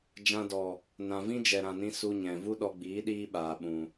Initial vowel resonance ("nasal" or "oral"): nasal